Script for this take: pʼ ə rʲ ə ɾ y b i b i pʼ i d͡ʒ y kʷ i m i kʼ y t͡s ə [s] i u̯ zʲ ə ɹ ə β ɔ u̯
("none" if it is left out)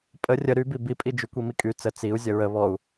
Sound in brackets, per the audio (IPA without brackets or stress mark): t͡s